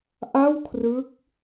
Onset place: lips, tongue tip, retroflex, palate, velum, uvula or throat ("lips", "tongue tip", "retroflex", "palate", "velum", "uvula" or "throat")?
throat